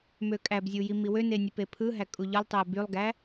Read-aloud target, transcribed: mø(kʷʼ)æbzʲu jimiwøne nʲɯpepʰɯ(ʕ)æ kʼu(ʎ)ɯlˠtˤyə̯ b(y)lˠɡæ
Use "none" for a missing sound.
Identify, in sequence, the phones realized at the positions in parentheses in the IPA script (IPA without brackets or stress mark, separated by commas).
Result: kʼ, ɦ, ʎ, y